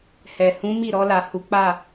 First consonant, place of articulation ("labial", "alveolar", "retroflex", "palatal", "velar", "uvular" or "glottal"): glottal